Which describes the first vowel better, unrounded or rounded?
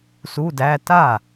rounded